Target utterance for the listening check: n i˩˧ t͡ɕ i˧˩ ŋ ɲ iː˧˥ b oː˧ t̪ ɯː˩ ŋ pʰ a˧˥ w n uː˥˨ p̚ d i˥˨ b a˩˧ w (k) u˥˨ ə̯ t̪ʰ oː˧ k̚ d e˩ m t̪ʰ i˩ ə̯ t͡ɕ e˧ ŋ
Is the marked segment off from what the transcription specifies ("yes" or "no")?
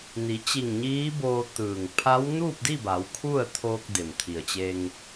yes